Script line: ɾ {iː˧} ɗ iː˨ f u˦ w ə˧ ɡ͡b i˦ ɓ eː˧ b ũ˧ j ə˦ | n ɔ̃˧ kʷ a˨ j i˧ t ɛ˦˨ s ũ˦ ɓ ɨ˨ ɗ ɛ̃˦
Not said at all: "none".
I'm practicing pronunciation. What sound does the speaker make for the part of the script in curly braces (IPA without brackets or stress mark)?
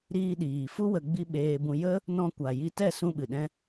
iː˧